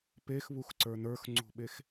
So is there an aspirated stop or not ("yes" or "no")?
no